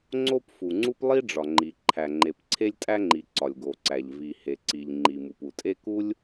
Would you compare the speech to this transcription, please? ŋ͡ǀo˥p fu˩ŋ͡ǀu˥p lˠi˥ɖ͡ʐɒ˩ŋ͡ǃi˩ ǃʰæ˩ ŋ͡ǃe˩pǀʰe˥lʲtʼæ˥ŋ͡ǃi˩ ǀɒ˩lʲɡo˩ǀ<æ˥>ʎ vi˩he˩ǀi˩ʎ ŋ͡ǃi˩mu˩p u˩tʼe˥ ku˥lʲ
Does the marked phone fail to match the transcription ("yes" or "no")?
yes